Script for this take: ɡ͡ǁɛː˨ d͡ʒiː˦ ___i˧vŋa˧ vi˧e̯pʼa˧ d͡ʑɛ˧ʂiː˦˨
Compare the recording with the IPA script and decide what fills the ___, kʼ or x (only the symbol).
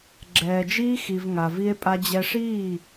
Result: x